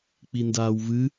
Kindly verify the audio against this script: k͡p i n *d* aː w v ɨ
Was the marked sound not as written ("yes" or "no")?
no